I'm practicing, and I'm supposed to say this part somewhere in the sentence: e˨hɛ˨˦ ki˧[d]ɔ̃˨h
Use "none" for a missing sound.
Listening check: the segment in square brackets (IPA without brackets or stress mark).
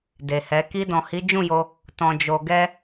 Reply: d